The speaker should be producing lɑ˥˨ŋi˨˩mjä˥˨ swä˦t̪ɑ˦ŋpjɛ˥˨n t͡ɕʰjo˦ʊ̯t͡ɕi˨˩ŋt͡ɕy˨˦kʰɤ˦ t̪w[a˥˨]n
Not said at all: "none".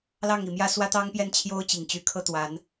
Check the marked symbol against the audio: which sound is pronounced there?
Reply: a˨˦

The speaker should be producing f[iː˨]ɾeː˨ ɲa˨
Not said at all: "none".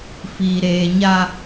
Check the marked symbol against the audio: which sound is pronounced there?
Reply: iː˨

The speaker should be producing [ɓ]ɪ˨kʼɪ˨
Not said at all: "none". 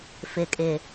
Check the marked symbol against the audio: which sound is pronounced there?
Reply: f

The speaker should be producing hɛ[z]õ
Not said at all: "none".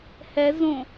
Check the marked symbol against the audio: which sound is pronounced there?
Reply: z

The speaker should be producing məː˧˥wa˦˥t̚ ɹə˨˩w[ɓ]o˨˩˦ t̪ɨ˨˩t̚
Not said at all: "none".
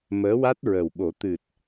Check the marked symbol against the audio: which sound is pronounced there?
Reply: ɓ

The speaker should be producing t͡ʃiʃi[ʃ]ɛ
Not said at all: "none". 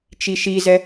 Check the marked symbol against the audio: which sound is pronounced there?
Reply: z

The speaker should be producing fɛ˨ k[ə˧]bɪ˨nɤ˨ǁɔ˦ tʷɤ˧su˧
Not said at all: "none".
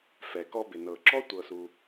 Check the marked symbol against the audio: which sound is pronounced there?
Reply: ɔ˧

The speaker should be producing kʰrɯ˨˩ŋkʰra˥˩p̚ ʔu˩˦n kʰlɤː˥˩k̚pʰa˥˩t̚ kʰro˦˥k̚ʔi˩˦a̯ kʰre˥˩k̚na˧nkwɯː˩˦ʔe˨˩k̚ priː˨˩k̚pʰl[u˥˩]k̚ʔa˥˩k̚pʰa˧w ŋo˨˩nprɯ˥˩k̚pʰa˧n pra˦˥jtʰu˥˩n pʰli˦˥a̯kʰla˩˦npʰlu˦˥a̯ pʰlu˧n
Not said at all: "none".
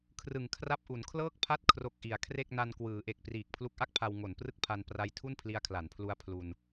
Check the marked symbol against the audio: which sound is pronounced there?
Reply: u˦˥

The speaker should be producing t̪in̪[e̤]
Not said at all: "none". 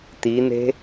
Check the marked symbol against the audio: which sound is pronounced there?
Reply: e̤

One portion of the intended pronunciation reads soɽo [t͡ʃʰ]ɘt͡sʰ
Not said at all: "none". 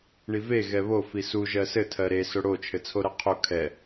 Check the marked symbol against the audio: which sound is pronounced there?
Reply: t͡ʃʰ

